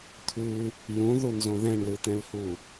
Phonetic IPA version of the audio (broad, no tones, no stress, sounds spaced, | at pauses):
t̪ʰ ʉ | j ũ ð u n z õ ð ɛ̃ ɳ l ɯ t̪ ɛ̃ l h u